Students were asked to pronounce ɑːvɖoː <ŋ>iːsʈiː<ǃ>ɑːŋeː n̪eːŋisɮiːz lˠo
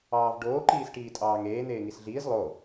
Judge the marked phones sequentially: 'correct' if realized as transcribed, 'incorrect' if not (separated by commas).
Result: incorrect, incorrect